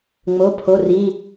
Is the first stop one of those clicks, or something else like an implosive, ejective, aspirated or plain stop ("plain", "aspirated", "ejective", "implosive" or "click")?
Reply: aspirated